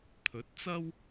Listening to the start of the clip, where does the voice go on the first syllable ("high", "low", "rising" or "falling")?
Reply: rising